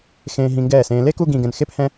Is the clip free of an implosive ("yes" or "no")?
yes